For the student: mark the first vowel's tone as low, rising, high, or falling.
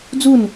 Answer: falling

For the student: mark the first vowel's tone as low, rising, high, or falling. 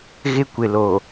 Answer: high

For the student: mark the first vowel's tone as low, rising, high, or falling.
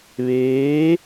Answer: rising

